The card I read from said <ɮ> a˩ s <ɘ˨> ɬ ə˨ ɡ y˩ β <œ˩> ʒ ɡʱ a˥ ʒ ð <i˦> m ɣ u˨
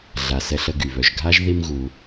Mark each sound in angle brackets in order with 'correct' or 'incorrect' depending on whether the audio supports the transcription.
correct, incorrect, correct, correct

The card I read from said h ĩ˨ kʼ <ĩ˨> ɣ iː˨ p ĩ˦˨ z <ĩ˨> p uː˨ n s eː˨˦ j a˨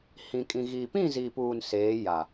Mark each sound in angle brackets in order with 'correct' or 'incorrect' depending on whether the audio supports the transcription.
correct, incorrect

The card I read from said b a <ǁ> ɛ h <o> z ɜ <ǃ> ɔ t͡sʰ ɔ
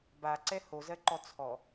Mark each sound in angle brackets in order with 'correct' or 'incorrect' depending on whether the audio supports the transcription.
incorrect, correct, correct

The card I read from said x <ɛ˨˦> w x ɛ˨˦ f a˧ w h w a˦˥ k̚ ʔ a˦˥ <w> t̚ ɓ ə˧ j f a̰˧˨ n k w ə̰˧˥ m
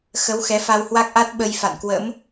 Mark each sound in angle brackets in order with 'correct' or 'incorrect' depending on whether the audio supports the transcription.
incorrect, incorrect

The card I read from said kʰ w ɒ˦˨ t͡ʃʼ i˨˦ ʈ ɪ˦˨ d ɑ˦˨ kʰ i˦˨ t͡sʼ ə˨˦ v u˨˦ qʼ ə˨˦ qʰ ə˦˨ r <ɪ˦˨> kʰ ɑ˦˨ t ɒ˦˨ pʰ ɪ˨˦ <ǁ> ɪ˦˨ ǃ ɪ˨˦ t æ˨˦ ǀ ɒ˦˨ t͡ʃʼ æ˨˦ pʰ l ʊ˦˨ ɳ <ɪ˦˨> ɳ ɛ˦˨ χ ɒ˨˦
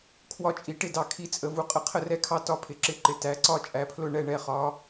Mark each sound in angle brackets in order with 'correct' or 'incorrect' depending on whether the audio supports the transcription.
incorrect, correct, incorrect

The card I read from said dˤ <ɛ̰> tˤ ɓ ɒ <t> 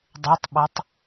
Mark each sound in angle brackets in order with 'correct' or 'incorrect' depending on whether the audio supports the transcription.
incorrect, incorrect

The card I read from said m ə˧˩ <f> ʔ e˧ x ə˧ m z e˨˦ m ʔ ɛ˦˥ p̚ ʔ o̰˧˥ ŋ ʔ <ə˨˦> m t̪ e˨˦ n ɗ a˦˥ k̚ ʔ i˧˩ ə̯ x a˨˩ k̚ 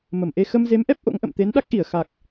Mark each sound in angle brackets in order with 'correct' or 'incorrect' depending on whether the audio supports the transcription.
incorrect, incorrect

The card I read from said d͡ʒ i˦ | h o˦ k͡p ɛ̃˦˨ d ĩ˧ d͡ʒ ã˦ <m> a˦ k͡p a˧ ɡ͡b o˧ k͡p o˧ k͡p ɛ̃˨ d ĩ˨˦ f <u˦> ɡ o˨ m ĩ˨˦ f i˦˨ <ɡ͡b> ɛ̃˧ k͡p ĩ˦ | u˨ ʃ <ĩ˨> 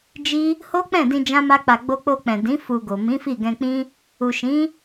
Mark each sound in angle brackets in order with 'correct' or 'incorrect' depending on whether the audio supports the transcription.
correct, incorrect, incorrect, incorrect

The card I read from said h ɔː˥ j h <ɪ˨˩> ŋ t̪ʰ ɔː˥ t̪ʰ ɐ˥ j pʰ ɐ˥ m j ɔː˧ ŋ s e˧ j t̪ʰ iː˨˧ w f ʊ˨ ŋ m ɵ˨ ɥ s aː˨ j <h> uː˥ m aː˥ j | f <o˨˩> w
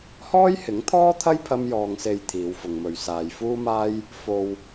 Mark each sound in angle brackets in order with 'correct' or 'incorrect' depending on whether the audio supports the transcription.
incorrect, incorrect, incorrect

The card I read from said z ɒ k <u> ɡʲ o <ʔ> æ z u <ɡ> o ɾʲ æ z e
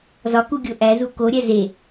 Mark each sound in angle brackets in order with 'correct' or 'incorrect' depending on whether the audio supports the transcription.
correct, correct, incorrect

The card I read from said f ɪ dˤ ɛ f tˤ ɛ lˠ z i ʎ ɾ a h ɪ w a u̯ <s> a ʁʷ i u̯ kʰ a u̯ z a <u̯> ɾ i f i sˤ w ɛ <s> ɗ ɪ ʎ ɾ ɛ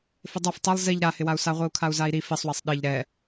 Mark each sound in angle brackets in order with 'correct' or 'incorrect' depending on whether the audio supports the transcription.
correct, incorrect, incorrect

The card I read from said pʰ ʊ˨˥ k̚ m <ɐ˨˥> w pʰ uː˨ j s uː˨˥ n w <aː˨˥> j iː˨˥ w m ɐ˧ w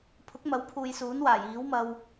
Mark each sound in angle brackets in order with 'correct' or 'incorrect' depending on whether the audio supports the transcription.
correct, incorrect

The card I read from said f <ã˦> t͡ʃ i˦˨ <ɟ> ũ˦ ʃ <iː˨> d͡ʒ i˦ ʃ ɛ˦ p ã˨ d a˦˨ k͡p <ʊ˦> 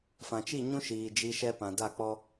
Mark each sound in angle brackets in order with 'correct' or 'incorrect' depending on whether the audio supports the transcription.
incorrect, incorrect, correct, incorrect

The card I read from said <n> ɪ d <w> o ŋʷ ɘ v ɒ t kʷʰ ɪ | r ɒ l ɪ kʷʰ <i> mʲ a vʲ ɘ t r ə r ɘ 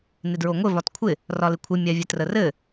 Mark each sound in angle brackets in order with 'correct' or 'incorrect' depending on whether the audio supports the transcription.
correct, incorrect, incorrect

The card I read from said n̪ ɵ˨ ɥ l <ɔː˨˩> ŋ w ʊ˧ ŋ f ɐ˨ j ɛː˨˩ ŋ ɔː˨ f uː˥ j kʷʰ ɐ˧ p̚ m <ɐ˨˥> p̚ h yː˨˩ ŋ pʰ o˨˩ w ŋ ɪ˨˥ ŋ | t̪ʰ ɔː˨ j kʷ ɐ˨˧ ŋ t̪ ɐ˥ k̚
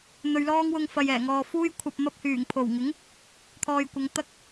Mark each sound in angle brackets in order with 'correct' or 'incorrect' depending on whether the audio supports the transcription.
incorrect, incorrect

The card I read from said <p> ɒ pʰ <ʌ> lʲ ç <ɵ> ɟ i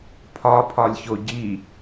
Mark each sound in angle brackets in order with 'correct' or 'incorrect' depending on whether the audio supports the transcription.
incorrect, incorrect, incorrect

